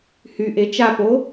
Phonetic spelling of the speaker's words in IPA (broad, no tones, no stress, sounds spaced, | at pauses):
h y ʔ e t͡ʃ a p o